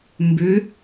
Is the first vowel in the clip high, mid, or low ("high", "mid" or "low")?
high